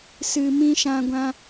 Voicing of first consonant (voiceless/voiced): voiceless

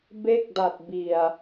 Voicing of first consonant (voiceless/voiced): voiced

